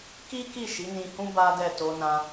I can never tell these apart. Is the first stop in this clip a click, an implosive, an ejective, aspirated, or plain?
plain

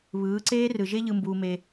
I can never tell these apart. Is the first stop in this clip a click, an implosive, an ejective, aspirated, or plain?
click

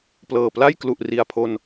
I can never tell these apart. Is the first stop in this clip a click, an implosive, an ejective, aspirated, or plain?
plain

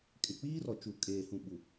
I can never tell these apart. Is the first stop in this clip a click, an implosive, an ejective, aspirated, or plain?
ejective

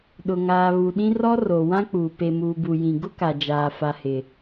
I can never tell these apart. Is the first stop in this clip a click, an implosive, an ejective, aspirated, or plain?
implosive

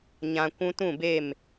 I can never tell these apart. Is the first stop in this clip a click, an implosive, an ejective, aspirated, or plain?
plain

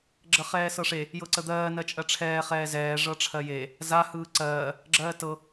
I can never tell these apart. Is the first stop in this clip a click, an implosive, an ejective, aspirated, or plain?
click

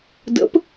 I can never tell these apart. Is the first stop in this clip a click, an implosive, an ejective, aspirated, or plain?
plain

